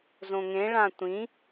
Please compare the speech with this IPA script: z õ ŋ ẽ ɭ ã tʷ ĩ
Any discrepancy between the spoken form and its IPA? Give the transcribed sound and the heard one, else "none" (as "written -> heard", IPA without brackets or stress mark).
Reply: none